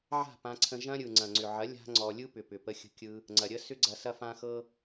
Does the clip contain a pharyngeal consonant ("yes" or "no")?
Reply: yes